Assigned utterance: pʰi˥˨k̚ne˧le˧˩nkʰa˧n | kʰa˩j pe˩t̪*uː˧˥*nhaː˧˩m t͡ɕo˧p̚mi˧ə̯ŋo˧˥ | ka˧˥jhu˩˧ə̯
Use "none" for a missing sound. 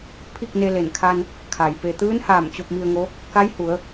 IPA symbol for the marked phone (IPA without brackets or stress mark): ɯː˧˥